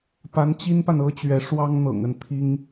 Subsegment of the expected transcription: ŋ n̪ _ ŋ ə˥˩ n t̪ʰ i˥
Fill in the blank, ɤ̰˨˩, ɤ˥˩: ɤ̰˨˩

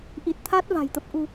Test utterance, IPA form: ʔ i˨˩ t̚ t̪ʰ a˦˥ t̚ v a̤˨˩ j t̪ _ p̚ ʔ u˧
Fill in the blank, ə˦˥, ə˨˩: ə˦˥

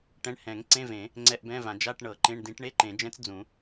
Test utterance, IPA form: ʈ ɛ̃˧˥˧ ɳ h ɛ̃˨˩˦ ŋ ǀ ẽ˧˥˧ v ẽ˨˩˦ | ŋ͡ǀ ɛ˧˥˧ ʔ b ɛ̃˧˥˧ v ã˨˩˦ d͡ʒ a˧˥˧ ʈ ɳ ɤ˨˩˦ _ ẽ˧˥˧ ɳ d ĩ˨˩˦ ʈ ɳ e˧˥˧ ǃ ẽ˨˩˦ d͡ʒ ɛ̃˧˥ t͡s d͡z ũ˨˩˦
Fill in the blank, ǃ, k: ǃ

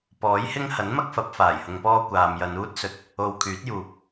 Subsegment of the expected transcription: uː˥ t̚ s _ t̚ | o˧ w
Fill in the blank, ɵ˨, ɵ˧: ɵ˨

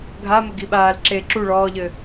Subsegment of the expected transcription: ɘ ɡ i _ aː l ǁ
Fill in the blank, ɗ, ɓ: ɓ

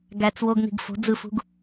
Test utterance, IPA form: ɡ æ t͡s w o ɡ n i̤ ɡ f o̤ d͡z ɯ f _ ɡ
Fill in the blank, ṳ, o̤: ṳ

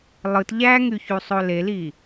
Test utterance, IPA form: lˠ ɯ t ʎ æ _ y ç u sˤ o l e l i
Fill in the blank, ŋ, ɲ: ŋ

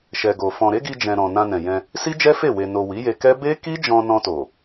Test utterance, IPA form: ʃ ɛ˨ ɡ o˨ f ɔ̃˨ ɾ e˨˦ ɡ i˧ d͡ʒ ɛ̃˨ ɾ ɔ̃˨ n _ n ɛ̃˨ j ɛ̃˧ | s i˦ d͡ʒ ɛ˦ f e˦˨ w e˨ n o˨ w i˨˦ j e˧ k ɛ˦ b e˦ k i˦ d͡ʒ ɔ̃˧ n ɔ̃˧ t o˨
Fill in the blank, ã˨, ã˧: ã˧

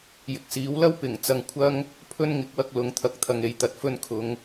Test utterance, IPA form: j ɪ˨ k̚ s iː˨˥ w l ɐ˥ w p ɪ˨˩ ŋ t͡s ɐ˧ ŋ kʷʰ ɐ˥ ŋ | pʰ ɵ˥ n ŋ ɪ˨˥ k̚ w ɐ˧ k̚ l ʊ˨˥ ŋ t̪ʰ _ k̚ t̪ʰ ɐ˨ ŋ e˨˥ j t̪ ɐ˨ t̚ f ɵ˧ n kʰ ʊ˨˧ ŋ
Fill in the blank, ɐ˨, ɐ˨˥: ɐ˨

